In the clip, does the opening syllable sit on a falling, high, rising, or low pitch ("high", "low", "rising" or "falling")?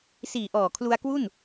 low